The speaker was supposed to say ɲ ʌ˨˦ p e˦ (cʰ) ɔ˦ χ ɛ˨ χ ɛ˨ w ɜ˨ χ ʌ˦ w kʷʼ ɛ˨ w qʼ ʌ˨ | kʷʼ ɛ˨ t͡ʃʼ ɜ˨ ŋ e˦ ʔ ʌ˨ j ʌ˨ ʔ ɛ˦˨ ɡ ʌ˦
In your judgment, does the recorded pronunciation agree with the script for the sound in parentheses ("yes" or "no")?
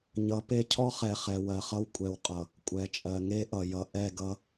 yes